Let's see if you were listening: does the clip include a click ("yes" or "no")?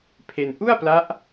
no